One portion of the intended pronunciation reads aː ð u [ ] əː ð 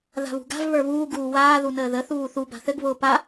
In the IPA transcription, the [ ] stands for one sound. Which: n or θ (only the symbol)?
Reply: n